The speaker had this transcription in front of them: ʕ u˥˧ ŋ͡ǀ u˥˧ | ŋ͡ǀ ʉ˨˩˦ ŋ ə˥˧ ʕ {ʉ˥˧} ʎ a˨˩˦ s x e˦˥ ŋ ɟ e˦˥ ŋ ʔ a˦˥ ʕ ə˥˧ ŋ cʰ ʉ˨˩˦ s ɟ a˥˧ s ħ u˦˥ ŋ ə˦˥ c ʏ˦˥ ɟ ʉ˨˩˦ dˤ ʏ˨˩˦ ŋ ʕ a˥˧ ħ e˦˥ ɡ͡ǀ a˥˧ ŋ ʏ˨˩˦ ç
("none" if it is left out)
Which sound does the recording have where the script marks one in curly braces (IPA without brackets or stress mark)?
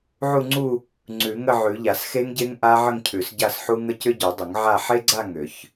ʉ˨˩˦